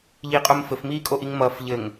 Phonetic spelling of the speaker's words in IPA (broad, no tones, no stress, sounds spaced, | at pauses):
ʎ iː qʼ o m f ɘ f m iː kʼ o ʔ i ŋ m ʌː f ʎ ɘ ŋ